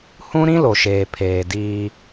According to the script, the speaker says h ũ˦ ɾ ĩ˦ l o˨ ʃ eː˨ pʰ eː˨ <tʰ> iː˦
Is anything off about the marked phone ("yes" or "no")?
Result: yes